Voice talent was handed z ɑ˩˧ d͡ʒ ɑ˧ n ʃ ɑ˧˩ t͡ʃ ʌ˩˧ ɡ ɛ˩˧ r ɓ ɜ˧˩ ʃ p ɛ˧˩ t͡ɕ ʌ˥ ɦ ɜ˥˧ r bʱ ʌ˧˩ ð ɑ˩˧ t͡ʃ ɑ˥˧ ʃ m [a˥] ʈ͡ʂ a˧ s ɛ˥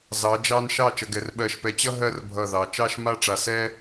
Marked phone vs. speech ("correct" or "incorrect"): correct